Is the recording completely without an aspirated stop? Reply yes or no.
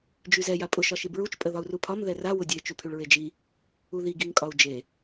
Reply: no